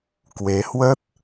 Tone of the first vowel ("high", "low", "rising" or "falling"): rising